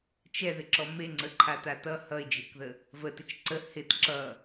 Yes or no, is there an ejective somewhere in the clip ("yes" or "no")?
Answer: no